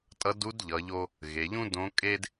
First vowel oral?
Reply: yes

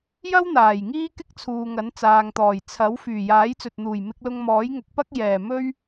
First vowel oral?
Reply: yes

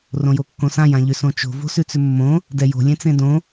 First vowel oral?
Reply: no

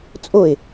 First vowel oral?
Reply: yes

